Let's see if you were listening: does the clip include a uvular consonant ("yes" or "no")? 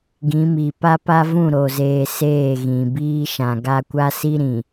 no